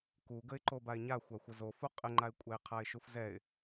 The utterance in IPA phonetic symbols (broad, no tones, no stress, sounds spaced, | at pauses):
k u ɡ ə ɪ̯ ǃ o b a ɪ̯ ɲ a xʷ a xʷ ə z o f u qʼ ɘ ŋ͡ǃ a ɪ̯ kʷʼ ɛ ɪ̯ qʰ a ɪ̯ ʃ u f z ɛ ɪ̯